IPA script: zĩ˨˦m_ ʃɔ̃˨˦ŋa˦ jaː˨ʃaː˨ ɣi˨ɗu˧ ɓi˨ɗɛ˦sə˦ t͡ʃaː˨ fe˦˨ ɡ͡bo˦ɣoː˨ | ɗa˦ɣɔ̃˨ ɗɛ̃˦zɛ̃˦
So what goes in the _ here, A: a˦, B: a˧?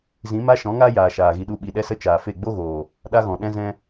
A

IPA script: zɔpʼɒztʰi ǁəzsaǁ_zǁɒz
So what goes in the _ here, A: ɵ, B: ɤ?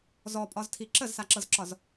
B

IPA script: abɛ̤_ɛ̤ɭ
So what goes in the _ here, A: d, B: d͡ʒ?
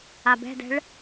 A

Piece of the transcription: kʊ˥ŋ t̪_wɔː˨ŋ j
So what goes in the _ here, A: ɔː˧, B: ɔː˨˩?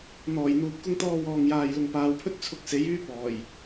A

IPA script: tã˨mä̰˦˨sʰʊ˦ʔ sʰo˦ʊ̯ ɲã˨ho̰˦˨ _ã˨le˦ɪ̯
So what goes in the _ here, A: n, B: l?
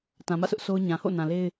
A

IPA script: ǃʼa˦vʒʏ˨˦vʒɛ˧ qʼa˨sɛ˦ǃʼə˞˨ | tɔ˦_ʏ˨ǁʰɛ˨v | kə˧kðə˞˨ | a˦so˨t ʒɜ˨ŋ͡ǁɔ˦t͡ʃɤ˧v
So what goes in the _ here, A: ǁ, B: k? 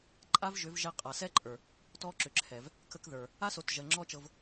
A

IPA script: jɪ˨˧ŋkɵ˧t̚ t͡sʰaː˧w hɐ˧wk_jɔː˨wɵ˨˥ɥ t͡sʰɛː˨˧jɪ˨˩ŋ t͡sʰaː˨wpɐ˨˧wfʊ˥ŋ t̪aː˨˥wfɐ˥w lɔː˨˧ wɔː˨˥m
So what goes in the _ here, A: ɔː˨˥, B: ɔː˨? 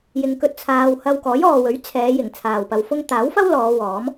A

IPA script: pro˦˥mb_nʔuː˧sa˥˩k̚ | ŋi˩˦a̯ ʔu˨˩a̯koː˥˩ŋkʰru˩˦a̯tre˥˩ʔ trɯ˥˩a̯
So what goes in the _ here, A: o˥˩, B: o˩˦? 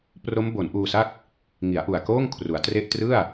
B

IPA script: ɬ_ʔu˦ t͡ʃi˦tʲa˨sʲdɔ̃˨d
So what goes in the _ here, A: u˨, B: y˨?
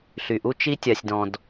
B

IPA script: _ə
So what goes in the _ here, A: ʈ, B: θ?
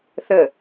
B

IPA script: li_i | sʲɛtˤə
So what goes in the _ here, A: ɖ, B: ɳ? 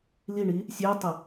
B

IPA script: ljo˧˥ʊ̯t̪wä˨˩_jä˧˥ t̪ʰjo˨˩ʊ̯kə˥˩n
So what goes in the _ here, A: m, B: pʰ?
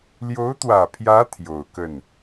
B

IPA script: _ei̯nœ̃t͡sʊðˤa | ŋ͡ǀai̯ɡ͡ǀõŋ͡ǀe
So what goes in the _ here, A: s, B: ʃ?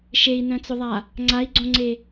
B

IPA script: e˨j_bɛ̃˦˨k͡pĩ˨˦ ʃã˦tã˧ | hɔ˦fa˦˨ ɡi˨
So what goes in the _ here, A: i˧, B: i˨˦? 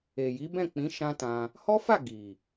B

